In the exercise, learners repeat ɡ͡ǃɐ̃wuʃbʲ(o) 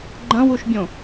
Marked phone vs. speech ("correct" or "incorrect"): incorrect